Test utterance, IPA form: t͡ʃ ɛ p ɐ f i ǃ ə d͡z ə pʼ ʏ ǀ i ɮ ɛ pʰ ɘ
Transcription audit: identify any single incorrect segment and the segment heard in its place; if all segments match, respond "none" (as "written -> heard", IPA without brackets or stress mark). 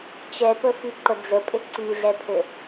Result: ɐ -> ə